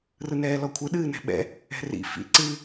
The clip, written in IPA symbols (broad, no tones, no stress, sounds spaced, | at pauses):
r ɯ n ɛː l ɔ kʷʰ ɯ ɗ ɨː n ɛ̤ ɓ ɛ̰ | ɛ̤ r ḭ f ḭ ǀ ɨ